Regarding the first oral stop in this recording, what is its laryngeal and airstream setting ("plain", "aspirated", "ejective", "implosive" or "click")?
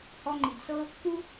click